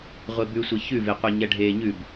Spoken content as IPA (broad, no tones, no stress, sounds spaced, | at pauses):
ʁʷ e b ʉ sʷ e ç ʉ v e qʷ ɛ ɲ ɛ ɖʱ eː ɲ ʉ b